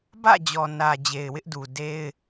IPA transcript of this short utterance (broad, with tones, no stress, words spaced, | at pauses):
bä̰˦˨d͡ʑɔ˨nä˨ d͡ʑe˨ɪ̯wɪ˦ʔdu˨ de˦ɪ̯